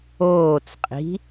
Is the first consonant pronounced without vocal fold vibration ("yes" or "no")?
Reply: yes